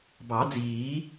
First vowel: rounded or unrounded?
unrounded